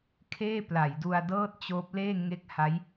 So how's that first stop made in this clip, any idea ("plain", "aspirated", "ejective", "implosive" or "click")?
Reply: aspirated